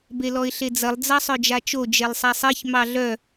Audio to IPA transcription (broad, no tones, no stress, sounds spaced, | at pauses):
b e l ɔ ɪ̯ ɬ e d͡z ɐ lˠ d͡z ɑ sˤ œ d͡ʒ a t͡ʃ o d͡ʒ e lˠ sˤ a sˤ e ç m ɑ ɮ œ